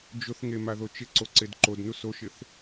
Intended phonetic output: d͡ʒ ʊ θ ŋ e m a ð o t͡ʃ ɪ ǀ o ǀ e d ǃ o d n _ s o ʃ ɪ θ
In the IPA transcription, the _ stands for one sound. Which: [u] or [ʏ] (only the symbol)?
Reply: u